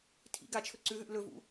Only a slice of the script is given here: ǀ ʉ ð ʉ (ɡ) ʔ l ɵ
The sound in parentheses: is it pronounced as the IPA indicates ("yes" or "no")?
no